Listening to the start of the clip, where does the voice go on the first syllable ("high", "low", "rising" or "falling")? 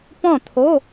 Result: falling